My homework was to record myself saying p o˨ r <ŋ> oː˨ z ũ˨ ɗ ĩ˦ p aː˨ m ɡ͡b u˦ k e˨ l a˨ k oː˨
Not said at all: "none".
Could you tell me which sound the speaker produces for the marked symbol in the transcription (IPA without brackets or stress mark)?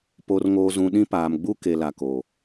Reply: ŋ